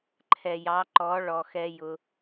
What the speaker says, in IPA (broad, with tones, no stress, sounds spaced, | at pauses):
ǃʰ ɛ˨ j ɑ˨˦ ǃ ɔ˨˦ ɭ ɔ˨ x ɛ˦ j ʊ˧